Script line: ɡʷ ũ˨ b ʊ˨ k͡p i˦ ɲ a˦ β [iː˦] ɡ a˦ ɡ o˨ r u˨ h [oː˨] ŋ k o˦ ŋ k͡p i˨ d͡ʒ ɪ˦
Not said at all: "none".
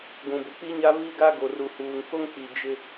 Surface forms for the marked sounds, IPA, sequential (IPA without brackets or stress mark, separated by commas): i˦, uː˨